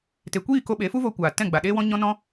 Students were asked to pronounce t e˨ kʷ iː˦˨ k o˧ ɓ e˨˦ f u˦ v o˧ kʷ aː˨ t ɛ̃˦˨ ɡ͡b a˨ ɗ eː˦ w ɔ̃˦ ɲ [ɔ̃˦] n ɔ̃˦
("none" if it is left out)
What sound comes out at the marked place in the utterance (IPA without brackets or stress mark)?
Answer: ɔ̃˦